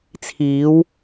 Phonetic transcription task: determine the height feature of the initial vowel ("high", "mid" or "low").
high